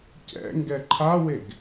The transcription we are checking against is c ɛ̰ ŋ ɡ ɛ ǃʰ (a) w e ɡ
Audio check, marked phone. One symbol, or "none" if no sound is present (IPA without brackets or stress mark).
a